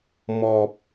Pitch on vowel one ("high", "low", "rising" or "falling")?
low